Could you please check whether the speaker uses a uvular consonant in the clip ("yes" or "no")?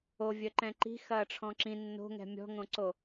no